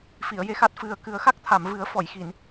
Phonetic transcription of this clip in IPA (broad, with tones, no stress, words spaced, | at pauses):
fi˨˩˨ə̯je˧xa˦˥t̚ fɨ˨˩ə̯kɨ˨˩˦ə̯ xa˦˥k̚ t̪ʰa˨˩˨mvɨ˨˩˦ə̯fɔ˨˩˨jxi˨˩˨n